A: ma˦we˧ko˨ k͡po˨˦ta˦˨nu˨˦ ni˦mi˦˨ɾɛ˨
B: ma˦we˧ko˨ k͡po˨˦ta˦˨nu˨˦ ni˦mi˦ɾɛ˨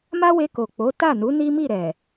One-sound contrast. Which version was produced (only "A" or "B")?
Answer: A